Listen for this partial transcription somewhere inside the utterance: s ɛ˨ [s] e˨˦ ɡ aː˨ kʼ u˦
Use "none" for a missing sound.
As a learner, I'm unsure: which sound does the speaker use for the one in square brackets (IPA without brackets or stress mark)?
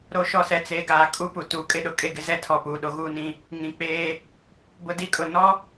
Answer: t͡s